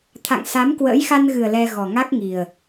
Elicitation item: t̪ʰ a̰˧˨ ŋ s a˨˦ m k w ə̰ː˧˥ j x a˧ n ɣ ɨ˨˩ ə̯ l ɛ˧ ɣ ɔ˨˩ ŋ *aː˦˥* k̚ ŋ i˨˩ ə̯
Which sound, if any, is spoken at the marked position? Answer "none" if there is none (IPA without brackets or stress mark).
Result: a˦˥